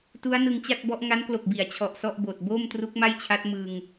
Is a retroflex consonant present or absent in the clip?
absent